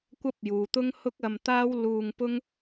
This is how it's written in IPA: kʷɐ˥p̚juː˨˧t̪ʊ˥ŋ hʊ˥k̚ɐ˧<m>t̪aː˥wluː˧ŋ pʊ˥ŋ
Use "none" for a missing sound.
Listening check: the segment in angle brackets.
m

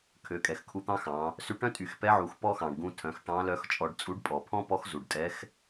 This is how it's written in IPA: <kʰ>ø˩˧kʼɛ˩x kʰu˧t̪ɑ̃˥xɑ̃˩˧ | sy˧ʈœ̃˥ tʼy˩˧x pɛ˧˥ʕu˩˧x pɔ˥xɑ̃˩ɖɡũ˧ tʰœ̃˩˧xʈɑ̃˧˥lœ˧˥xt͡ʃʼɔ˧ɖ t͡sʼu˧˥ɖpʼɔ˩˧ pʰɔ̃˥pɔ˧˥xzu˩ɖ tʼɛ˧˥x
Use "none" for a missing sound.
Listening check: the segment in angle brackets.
kʰ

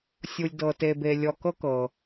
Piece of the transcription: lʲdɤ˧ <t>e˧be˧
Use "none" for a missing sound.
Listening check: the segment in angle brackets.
t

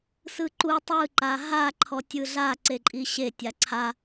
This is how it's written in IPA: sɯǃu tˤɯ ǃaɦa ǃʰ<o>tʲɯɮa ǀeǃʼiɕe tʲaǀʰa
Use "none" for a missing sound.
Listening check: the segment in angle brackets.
ɔ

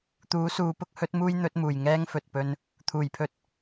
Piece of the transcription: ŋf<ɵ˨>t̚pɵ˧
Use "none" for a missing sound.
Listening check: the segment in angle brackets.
ɵ˨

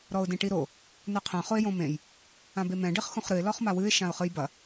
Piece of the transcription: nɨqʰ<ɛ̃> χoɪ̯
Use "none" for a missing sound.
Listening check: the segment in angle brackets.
ɛ̃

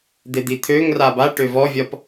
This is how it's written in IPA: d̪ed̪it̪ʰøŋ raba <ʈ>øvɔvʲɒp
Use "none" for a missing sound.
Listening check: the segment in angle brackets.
ʈ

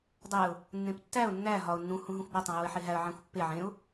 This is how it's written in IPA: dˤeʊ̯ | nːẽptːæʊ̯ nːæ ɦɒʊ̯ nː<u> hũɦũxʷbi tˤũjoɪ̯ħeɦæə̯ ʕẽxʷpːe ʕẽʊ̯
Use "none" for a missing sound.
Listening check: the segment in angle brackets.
ũ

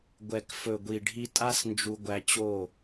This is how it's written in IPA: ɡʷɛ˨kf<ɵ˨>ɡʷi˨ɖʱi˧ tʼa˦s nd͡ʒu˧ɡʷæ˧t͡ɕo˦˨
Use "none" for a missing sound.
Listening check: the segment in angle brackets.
ɵ˨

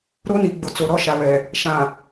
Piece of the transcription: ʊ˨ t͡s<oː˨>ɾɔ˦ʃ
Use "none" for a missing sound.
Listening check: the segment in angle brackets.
o˨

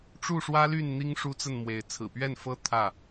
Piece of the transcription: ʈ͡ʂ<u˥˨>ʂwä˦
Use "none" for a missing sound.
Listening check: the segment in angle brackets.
u˥˨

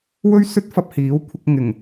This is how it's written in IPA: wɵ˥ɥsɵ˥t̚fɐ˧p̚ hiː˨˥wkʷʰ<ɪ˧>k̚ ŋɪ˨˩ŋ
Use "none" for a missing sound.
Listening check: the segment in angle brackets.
ɪ˧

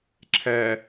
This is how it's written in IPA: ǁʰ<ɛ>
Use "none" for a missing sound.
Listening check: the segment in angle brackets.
ɛ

